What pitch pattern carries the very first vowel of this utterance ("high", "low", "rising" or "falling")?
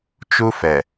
high